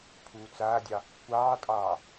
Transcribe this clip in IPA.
pʰuːt͡saːdʲɑ | kʷɑːtʼɑː

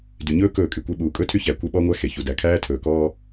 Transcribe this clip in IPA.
dy˨ɲɵː˦ kɵː˦˨kʼy˨kʷe˦ ɓuː˨kʼɵ˦tʰy˦çæ˨ kʷe˦ɓɔ˦ŋʷæ˦ xe˨çu˨dæ˨ kʰæː˦tʰɵː˨kɔː˦

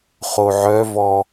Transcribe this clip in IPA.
χoʕœvɔ

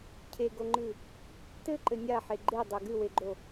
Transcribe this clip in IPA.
cʰeɡoŋ͡ǃɨ | tɘǃɘ nʲaħe ɡ͡ǃedˤɘ ɡɨweɡ͡ǃo

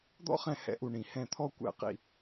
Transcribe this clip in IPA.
d̪ɔ̰˥χɛ̃˦˨ hɛ̰˨˦ʔu˨˩ ɳĩ˨˩ hɛ̃˦˨t̪ʰɔ˥ kʷɛ̰˦˨qḭ˦˨

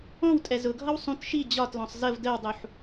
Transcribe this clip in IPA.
ɔ̃wtʼɛ zʊɡʱʌw sˤũt ʃi d͡ʑɒtlɔ̃sˤ zəv dəwdˤuħ

